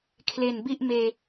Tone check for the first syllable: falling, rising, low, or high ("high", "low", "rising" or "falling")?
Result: low